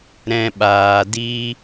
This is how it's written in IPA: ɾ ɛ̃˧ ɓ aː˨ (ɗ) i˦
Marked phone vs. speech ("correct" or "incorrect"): incorrect